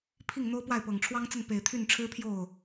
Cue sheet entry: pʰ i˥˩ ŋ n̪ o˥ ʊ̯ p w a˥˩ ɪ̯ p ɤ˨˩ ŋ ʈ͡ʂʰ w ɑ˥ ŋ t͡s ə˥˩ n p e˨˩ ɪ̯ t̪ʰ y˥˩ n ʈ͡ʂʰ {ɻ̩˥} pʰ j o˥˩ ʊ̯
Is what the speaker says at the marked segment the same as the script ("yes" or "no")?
yes